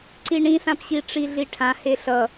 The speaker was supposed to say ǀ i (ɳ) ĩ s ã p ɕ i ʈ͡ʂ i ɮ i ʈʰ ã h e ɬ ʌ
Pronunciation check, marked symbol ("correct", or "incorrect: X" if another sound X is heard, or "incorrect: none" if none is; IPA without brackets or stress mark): correct